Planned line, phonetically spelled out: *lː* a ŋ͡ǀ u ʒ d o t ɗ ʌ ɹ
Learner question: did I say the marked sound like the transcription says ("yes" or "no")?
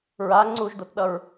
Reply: no